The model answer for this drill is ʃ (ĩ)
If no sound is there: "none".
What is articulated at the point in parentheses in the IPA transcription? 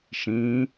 ĩ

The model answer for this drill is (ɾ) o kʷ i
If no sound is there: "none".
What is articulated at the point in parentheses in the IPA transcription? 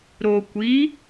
ɾ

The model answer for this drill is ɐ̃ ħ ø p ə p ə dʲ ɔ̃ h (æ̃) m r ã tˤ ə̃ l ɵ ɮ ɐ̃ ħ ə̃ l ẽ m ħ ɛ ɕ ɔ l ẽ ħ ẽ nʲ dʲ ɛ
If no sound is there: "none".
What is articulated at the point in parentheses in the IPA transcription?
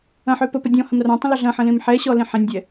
ɐ̃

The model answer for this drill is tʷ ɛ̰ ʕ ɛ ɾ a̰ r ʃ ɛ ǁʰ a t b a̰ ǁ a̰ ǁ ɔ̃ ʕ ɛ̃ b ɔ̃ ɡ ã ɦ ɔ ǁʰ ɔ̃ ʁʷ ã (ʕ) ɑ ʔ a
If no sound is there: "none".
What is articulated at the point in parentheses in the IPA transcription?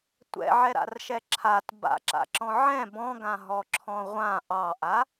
ʔ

